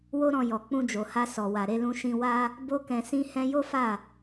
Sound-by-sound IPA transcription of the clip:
w o˦ ɾ ɔ̃˧ j ɔ˨ k͡p ũ˧ d͡ʒ o˨ h a˧ s ɔ˨ w a˨ ɾ e˧ l ũ˧ ʃ ĩ˧ w a˦ | b o˦ k ɛ̃˧ s ĩ˦ h ɛ̃˦ j o˦ f a˦˨

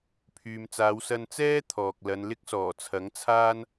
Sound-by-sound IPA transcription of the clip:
pʰ yː˨ m t͡s aː˨˧ w s ɐ˧ n t͡s ɛː˥ t̪ʰ ɔː˨ k̚ l ɐ˨˧ n l ɪ˥ k̚ s ɔː˨˩ t͡sʰ ɐ˨˥ ŋ t͡sʰ aː˥ n

